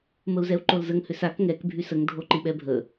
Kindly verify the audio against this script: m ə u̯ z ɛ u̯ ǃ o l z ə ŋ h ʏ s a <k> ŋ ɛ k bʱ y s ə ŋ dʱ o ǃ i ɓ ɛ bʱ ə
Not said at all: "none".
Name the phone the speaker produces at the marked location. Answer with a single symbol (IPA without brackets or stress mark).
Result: k